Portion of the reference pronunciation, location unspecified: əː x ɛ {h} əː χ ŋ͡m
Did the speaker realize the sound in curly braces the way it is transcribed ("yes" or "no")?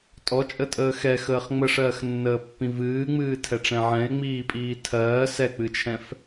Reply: no